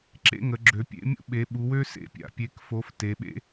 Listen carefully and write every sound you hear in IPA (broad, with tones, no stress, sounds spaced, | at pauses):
ǁ ḛ˦ ŋ ə˩˧ ɡ͡ǁ ø˩˧ pʲ ḛ˦ mʲ ṵ˦ ɓ e˩˧ ɓ u˩˧ w ø˦ s ḛ˦ pʲ a̰˩˧ pʲ e˩˧ k f o˩˧ f t e˩˧ ɓ ḛ˦